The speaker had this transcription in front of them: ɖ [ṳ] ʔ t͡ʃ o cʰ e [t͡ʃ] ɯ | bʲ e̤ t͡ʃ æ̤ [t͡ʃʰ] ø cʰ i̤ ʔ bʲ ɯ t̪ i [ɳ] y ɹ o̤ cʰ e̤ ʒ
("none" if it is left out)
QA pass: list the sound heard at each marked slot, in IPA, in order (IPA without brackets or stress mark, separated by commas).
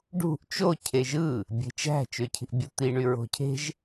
ṳ, ʒ, t͡ʃ, ɳ